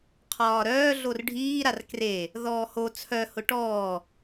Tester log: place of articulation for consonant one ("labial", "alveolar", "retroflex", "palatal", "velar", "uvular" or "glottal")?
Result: uvular